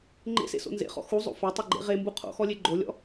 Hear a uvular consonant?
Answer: yes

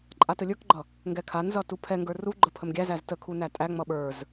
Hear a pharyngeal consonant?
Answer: no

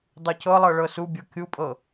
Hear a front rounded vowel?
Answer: no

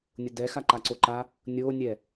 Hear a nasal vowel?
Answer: no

